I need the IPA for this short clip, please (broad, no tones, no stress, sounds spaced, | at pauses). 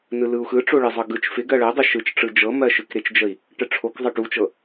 n ɯ l ɯ u̯ x ɯ ʈ͡ʂ o ɭ ɪ zˤ ɤ ɡ ɯ t͡ʃ f ɪ ɡ ɜ ɭ ɜ dˤ ɪ ʃ ɯ t͡ʃ ʈ͡ʂ ɯ d͡ʒ ɤ m ɜ ʃ ɯ k ɾ ɪ t͡ʃ d͡ʒ ə i̯ | ʈ ə ʈ͡ʂʰ o k zˤ ɤ ʈ u t͡ʃ ɤ